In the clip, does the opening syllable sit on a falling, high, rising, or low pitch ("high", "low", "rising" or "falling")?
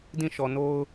falling